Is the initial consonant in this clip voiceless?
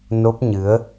no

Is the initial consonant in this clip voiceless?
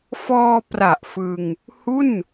yes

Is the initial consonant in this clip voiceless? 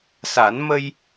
yes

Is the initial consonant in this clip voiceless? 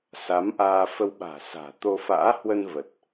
yes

